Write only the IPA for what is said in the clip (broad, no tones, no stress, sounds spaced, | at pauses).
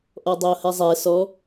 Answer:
ʔ ɔ dˤ ɛ o̯ h ɛ zˤ ɛ s ɔ